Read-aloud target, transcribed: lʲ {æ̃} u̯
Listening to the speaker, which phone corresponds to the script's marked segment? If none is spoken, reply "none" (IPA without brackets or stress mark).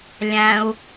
æ̃